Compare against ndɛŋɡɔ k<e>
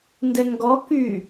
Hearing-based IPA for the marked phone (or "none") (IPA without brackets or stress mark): y